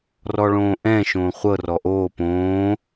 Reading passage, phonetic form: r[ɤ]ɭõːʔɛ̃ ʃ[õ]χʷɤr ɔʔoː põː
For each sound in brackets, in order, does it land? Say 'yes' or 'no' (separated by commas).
no, no